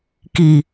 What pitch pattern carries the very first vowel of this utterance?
low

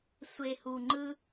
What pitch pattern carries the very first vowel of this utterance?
low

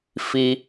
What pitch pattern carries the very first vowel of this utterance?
low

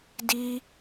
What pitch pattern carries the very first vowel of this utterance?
high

